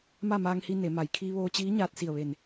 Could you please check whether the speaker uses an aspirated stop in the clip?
yes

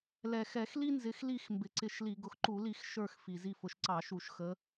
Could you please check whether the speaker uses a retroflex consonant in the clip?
no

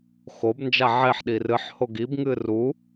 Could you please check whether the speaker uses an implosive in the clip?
yes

